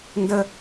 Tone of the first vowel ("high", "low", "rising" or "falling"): high